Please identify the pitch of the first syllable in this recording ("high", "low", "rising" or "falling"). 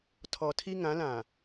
low